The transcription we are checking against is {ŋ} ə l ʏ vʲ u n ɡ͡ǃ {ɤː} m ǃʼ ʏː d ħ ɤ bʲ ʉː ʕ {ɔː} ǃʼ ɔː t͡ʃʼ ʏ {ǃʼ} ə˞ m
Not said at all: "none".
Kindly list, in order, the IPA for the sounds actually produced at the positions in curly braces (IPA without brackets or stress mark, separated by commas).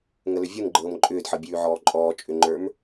ŋ, ɤː, ɔː, ŋ͡ǃ